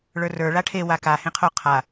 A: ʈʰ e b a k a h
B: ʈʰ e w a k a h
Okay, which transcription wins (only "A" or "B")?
B